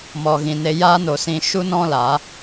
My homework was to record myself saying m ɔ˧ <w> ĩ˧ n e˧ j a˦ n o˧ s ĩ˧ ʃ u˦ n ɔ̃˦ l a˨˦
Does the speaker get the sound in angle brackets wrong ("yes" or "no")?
yes